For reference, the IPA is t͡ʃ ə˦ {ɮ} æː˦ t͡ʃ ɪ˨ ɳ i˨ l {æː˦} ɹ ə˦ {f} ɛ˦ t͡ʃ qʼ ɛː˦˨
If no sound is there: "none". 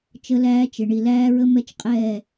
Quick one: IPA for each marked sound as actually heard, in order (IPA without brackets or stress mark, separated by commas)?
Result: l, æː˦, m